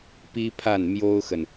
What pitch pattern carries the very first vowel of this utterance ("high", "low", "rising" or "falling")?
high